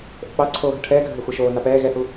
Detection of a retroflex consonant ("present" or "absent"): present